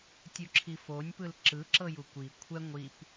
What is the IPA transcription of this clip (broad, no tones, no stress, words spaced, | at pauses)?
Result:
tʲuǁʰifonʲpɯl ǁɯǁɤj ukʷi kʷʰɛ ŋʷip